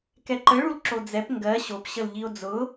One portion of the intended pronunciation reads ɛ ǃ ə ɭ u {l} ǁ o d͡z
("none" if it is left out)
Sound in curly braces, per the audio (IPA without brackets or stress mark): l